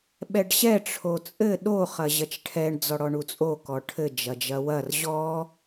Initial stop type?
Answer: implosive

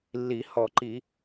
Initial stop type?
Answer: click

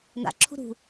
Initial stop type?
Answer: click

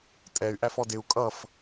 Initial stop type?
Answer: ejective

